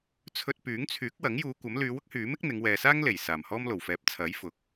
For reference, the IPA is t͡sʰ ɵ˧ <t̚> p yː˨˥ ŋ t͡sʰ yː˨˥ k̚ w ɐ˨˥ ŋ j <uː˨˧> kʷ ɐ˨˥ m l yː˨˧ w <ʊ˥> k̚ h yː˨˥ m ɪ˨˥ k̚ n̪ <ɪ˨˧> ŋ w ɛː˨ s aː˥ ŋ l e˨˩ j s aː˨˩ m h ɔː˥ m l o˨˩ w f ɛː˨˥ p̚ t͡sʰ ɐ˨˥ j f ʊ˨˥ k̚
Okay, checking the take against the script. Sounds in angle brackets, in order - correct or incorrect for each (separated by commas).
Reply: correct, correct, correct, correct